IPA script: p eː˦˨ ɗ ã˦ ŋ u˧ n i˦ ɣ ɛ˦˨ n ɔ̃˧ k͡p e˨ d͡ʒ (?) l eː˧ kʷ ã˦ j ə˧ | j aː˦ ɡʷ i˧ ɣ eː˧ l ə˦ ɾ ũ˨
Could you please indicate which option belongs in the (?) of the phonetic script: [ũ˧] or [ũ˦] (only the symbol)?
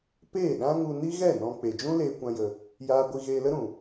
ũ˦